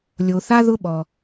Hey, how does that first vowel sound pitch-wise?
low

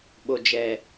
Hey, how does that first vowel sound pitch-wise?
low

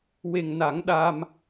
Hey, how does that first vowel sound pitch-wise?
low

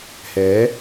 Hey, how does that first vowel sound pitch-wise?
rising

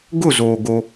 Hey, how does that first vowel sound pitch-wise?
falling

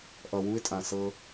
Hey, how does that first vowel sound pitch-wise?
low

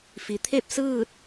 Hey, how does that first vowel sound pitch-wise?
low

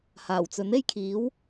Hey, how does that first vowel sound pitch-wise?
low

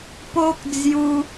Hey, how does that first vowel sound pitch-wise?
high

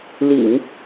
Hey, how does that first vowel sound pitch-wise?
low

